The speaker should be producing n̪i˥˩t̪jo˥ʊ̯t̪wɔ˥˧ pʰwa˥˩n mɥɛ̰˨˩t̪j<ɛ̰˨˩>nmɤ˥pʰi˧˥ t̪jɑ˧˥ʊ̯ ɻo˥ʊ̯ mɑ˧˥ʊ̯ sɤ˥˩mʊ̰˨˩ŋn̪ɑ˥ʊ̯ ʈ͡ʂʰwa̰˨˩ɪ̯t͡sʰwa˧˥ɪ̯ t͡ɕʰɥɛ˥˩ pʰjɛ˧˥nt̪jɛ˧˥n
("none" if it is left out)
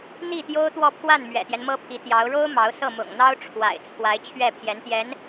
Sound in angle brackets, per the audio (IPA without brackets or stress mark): ɛ˦